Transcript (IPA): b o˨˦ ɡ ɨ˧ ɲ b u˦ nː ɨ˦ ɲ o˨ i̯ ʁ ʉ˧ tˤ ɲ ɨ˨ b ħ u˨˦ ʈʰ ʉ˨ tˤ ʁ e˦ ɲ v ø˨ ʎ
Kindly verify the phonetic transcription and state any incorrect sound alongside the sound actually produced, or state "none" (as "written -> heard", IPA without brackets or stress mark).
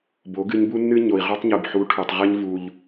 ø˨ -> u˨